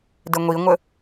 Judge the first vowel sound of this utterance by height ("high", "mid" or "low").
mid